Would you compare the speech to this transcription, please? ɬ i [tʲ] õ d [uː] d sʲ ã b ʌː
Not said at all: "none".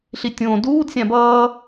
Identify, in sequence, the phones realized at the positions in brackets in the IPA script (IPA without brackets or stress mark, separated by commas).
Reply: tʲ, uː